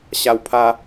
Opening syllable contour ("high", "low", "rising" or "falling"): high